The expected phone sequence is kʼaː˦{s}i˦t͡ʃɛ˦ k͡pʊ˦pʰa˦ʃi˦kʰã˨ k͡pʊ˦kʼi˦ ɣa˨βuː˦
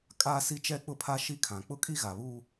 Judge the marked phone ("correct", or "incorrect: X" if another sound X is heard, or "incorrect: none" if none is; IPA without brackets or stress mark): correct